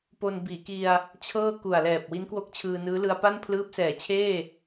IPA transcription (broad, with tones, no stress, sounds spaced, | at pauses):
p o˧ n b iː˩˦ k i˧ a̯ | t͡ɕʰ ɤː˥˩ k u˨˩ a̯ l ɛː˨˩ p̚ w i˦˥ n k w o˥˩ k̚ t͡ɕʰ ɯː˧ n ɯː˦˥ l ɯ˧ a̯ p a˥˩ n pʰ l ɯː˦˥ p̚ s ɛː˩˦ t͡ɕʰ eː˥˩